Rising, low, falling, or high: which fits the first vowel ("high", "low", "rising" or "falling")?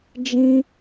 high